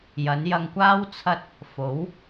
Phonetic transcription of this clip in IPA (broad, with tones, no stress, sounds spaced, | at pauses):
j ɐ˨˧ n j ɐ˧ ŋ kʷ aː˥ w t͡sʰ ɐ˥ t̚ | f o˨˥ w